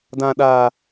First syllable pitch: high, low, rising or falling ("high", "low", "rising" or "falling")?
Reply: low